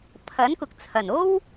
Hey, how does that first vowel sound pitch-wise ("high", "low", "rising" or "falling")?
rising